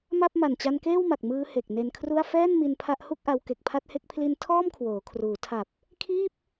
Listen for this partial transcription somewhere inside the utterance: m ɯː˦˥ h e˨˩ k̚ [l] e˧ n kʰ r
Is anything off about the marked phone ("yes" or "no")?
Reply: yes